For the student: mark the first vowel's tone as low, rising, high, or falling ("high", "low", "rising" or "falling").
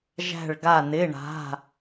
falling